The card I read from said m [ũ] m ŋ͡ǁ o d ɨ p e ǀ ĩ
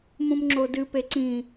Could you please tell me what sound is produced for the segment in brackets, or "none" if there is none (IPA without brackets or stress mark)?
ũ